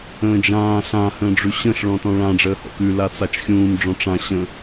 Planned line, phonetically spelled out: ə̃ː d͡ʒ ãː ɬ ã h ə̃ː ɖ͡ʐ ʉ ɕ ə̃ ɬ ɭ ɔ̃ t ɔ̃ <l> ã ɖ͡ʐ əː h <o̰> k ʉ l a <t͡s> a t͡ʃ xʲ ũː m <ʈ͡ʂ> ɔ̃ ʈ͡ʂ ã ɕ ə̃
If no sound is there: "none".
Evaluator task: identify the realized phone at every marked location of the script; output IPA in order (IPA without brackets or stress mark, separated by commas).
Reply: ɭ, ɔ̰, t͡s, ɖ͡ʐ